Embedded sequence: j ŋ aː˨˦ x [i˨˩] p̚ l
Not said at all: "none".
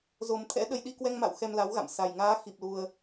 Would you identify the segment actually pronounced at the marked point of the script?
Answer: i˨˩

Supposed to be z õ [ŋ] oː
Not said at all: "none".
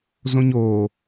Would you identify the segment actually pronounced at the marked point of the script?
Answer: ɲ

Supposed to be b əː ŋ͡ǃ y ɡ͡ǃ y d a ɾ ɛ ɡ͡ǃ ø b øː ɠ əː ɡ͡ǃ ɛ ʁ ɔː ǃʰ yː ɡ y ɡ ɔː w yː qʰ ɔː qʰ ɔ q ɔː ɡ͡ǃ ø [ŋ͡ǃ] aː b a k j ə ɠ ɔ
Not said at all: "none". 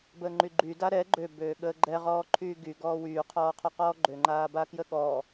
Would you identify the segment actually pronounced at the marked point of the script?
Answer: ŋ͡ǃ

